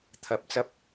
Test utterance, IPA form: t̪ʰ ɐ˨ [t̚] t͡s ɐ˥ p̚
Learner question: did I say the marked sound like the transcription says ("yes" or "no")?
no